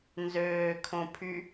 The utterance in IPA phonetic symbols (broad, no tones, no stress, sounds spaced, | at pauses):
n z øː kʰ õ pʰ y